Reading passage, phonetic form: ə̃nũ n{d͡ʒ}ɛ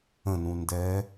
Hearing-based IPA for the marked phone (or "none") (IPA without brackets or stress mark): d